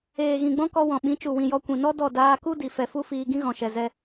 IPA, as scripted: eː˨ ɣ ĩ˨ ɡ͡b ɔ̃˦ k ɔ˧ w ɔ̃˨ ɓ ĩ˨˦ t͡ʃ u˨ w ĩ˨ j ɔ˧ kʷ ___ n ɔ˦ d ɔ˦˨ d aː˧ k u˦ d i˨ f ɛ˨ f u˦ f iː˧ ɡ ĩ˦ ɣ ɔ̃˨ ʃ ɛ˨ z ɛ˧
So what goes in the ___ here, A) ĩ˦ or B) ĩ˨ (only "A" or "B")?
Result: B